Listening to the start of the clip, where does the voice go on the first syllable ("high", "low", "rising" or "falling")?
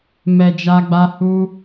low